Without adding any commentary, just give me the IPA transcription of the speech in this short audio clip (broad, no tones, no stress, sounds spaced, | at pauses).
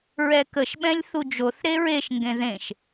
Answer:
ɹ ɛ k ə ʃ ɓ ɛ̃ lʲ θ u d͡ʒ o θ ɾ e ɹ e ʃ ŋ ɡ ẽ ð ẽ ʃ